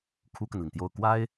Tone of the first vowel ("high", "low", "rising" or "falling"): high